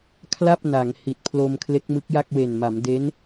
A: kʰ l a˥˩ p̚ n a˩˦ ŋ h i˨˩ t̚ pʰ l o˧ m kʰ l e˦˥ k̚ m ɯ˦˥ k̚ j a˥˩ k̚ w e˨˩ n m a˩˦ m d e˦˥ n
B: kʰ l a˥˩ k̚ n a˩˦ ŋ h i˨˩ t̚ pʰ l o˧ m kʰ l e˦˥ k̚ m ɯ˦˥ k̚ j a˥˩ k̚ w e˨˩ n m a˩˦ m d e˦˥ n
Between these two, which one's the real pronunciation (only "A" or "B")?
A